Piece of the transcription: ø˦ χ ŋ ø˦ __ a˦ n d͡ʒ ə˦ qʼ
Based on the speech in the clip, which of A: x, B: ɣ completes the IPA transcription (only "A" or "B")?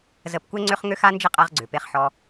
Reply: A